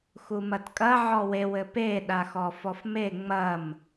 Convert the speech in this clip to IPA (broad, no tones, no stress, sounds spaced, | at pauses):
x u m ɐ t kʼ ɐ ʕ ɔ w e w ɘ p e ɗ a x ɔ f ɔ f m e ŋ͡m ɐ m